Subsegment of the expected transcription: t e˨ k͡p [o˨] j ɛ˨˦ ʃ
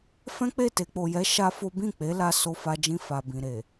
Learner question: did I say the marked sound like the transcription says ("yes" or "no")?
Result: yes